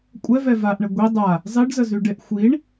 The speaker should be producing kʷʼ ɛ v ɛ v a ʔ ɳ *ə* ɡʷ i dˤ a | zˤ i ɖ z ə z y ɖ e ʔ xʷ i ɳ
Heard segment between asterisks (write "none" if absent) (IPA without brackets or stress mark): ə